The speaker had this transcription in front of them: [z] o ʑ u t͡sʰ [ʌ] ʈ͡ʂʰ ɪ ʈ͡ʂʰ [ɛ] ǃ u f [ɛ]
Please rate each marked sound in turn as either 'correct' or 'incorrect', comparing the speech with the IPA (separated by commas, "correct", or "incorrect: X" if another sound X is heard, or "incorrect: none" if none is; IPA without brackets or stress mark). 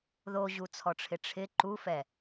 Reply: incorrect: ð, incorrect: ɔ, incorrect: ɪ, correct